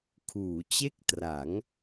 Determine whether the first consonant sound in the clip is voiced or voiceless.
voiceless